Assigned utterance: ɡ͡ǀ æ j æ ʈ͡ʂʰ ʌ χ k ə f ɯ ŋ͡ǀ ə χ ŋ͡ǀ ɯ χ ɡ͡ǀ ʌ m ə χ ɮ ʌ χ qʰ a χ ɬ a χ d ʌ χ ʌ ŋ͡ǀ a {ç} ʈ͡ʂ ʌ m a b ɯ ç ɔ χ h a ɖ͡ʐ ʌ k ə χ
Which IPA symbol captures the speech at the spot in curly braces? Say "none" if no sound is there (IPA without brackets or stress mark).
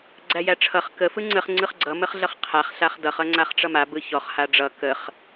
χ